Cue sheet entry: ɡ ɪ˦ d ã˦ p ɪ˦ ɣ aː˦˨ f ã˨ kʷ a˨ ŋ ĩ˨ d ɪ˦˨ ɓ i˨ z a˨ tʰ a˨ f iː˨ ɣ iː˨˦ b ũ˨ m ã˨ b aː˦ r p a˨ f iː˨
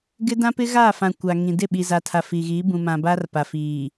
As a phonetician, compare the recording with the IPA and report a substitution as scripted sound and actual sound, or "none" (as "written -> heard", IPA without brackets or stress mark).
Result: none